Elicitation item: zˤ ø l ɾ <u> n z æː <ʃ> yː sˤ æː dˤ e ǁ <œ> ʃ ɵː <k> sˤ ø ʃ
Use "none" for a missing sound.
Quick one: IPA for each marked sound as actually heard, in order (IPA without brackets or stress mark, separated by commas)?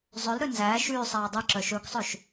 ø, ʃ, œ, k